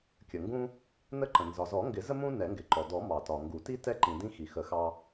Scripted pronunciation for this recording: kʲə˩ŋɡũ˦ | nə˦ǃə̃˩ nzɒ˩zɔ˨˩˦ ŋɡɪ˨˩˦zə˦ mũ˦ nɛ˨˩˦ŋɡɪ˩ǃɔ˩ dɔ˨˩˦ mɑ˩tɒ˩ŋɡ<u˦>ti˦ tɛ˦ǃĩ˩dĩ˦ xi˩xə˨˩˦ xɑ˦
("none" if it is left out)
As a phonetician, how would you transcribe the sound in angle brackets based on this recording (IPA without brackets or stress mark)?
u˨˩˦